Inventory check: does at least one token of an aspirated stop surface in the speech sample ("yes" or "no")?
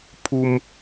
yes